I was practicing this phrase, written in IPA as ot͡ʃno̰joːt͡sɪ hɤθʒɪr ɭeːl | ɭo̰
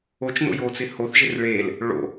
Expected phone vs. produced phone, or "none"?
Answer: ɤ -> o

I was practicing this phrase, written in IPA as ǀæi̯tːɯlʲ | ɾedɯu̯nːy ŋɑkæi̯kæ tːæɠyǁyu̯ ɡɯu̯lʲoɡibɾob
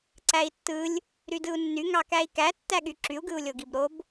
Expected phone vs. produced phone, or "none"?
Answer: e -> y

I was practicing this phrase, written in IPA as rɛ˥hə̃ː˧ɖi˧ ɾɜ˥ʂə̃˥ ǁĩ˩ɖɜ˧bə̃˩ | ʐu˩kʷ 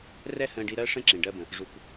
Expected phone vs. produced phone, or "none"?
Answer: none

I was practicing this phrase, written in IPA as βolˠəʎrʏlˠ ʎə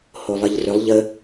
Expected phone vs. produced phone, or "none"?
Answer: β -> h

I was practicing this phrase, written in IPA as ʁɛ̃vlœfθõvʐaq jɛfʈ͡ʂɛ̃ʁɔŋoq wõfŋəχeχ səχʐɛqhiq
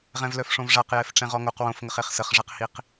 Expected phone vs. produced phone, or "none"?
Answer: θ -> ʂ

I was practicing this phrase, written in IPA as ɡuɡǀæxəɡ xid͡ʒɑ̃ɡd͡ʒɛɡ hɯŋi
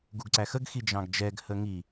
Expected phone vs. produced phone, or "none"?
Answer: ɯ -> ə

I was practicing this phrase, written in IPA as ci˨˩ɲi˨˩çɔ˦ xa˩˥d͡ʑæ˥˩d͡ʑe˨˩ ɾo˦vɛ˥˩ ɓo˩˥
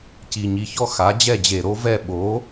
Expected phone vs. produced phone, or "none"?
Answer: æ˥˩ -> ɛ˥˩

